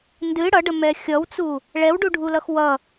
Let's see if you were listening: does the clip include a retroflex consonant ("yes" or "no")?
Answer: yes